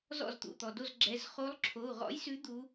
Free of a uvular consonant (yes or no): no